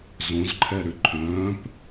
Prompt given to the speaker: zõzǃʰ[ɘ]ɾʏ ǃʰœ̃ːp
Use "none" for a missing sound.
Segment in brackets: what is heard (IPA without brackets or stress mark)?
ɛ